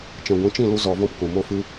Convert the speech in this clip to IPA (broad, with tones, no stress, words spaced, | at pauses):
t͡ʃɛ̃˨ɡʷĩ˨˦t͡ʃĩ˦˨lu˧ zɔ˧vɔ̃˦pkũ˨mo˦ fɨ˧